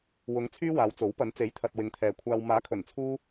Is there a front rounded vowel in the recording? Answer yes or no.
yes